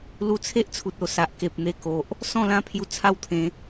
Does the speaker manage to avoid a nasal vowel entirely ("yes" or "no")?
no